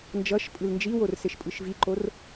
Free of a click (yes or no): no